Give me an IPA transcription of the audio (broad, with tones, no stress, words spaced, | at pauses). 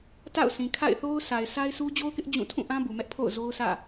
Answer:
ta̰˦˨ʊ̯sĩ˨ kʰa̰˦˨ɪ̯θo˦ʊ̯ sʰa˨ɪ̯sa˦ɪ̯sʰu˦ d͡ʑo˦ʊ̯kɪ˦ʔ d͡ʑũ˦˨ tʰũ˦˨ʔã˦ bu˨mɛ˦ʔpʰo̰˦˨ʊ̯ zo˦ʊ̯sä̰˦˨